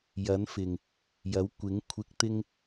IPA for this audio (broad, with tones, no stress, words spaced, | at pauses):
jɐ˨˥nfɪ˨˩ŋ | jɐ˨˥wkʷɪ˨˥ŋ kʷʰɪ˧k̚ t̪ɪ˥ŋ